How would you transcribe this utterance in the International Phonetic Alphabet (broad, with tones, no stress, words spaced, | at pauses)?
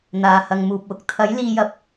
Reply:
n̪aː˨˧hɐ˨˧ŋmuː˨p̚wʊ˨k̚ t̪ʰɐ˨˥j liː˧jɐ˧p̚